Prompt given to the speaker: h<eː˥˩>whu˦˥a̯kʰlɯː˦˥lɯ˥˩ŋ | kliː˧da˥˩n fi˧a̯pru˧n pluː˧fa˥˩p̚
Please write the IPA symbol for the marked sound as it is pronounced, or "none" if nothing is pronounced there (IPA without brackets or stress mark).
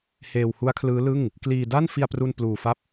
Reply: eː˧